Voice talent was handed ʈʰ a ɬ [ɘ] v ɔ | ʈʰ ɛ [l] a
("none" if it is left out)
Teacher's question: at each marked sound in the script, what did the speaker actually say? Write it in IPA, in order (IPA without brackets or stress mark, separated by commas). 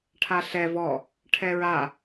ɛ, ɹ